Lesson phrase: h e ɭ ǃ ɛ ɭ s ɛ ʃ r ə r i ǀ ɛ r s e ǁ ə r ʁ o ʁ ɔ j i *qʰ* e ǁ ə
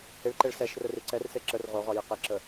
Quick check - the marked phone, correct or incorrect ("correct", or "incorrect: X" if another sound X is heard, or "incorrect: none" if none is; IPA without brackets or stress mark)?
incorrect: q